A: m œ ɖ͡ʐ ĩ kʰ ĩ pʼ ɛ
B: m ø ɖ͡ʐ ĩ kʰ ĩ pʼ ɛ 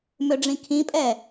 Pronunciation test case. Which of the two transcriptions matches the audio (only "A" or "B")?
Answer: B